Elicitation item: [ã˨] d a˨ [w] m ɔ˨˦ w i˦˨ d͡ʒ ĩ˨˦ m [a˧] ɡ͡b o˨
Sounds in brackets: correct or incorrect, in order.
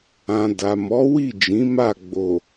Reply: correct, incorrect: none, incorrect: a˦˨

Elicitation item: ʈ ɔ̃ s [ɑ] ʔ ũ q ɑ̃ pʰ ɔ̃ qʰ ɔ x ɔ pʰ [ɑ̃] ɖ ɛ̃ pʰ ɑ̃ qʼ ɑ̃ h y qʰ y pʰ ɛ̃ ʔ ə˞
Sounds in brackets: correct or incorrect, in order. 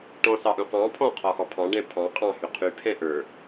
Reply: correct, correct

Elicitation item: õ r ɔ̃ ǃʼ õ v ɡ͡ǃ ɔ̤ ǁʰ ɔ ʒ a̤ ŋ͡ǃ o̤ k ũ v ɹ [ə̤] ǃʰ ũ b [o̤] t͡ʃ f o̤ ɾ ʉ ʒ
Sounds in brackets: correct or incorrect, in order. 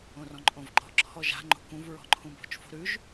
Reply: incorrect: ɔ̤, correct

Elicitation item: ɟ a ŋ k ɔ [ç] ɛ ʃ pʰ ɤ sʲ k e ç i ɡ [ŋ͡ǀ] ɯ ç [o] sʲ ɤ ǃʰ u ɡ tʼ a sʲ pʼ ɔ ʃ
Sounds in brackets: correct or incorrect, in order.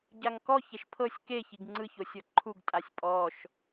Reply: correct, correct, correct

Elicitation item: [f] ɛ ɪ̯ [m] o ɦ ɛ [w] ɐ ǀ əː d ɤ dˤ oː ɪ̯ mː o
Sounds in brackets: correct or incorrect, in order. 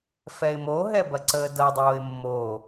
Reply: correct, correct, incorrect: b

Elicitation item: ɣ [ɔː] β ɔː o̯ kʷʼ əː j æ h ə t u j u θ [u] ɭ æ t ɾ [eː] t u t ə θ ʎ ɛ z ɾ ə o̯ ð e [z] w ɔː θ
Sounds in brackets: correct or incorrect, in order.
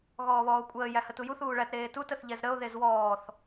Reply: correct, incorrect: uː, correct, correct

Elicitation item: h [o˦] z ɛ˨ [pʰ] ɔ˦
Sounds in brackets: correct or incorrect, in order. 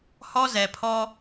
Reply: incorrect: ɔ˦, correct

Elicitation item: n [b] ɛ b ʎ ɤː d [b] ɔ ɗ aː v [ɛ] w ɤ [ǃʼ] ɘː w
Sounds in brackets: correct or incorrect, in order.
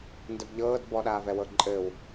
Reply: incorrect: d, correct, correct, correct

